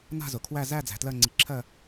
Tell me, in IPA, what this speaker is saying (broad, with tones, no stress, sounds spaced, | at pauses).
n a̤˥˨ z ʊ˩ kʰ w æ˥˨ z æ˥˨ d͡z æ̤˩ t l ɜ˥˨ ŋ͡ǀ i˩˥ ǁʰ ɜ˥˨